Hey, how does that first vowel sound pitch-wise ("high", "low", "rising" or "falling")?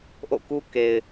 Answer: falling